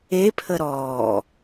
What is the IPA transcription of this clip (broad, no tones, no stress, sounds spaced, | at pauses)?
e pʰ ə ɾ ɔː